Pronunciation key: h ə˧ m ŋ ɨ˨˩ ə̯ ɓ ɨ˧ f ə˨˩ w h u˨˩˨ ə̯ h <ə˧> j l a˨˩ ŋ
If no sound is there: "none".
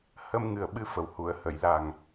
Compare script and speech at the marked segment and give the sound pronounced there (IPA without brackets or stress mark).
ə˨˩˨